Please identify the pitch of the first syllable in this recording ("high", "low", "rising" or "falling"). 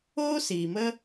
high